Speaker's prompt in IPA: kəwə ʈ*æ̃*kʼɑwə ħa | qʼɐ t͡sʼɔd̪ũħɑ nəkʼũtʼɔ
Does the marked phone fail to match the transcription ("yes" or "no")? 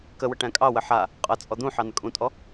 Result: no